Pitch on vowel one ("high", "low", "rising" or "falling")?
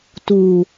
low